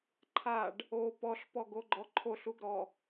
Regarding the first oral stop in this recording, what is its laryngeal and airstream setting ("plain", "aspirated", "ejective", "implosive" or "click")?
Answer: click